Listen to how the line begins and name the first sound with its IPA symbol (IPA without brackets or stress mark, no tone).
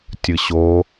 tʲ